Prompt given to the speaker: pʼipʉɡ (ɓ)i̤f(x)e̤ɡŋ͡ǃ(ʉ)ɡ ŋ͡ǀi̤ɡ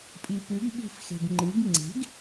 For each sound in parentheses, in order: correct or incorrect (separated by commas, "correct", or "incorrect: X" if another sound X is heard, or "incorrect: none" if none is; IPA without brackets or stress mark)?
correct, correct, incorrect: ɨ